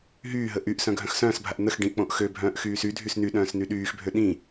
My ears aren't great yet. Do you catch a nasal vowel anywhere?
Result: yes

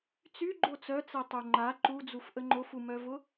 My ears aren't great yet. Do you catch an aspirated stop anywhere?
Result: no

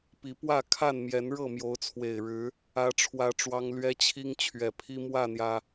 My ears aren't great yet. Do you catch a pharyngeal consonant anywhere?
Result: no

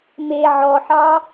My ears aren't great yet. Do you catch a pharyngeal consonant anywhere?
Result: yes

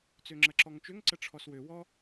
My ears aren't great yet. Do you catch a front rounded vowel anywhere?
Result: yes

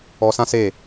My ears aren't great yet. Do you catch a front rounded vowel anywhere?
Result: no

